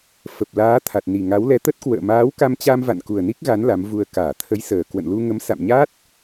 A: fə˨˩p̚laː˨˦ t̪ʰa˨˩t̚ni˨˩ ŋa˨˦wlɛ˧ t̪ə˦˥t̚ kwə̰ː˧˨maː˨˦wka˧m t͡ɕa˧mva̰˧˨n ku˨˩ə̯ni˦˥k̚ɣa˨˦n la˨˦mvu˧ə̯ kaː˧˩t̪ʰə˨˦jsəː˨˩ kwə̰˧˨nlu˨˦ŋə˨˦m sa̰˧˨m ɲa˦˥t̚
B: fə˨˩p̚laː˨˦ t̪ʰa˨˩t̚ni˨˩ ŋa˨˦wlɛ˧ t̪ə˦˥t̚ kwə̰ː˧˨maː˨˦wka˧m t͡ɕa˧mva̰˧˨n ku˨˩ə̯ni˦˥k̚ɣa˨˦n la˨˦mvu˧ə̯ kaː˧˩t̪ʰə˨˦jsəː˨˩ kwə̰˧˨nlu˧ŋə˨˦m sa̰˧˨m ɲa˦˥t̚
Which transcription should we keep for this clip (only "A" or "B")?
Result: B